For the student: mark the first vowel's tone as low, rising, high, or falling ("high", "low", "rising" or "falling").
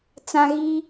high